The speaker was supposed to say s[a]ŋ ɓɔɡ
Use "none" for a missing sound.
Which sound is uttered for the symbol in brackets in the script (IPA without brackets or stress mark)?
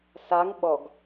a